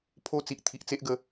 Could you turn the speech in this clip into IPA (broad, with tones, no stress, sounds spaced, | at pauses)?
pʰ o˧ t͡s i˨ ʔ t̪ʰ i˨ ʔ t͡s e˦ ʔ ɡ ə˧